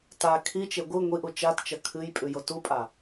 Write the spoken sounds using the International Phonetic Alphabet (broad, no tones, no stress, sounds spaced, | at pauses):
t a kʰ i t͡ʃ e ɡʷ ɨ ŋʷ i ʔ u t͡ʃ a t t͡ʃ ɐ kʰ ɨ j pʼ ʉ j o t u pʼ a